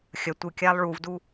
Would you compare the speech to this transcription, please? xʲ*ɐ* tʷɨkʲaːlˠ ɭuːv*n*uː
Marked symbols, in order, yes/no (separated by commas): yes, no